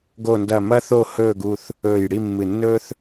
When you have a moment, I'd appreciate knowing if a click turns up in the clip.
no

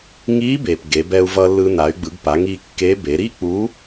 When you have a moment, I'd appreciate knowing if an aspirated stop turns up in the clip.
no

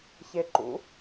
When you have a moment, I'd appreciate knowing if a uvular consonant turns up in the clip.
no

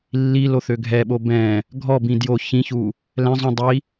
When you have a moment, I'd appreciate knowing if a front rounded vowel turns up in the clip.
yes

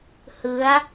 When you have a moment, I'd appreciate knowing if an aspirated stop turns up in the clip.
no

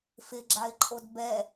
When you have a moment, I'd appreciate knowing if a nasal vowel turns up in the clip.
no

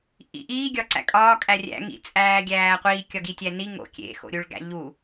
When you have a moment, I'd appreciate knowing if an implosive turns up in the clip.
no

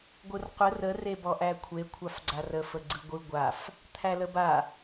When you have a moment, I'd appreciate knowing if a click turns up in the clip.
yes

